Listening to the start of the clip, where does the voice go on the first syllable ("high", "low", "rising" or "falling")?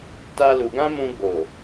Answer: high